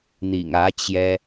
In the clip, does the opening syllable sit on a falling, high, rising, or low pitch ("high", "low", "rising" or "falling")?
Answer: low